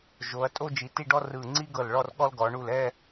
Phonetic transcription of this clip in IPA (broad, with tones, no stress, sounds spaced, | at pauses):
ʒ o˩˧ ɐ̯ tʼ o˥ d͡ʒ i˩˧ t i˥˧ ɖ ɔ˥ r ɯ˧˩ ŋ͡ǀ i˥ ɡ ɤ˧˩ l ɭ ɔ˥˧ r ɠ ɔ˥ l ɡ ɔ˩˧ ɳ u˧˩ l ɛ˥˧